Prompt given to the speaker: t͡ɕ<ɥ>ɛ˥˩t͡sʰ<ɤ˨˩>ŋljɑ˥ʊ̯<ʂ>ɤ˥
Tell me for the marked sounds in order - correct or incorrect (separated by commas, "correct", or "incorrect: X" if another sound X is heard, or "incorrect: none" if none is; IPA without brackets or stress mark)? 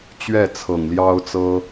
correct, correct, incorrect: t͡s